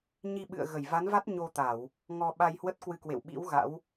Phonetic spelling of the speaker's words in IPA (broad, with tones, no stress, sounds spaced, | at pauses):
ɲ i˧ ɓ ɨ̰˧˨ ə̯ ɣ ə˧˩ j v a˨˦ n v a˦˥ t̚ ɲ o˧ t̪ a˧˩˨ w | ŋ ɔ˧ ɓ a˧ j h w ə˦˥ t̚ k w ɨ˧ k w ḛ˧˨ w ɓ ḭ˧˥ w ɣ a̰˧˥ w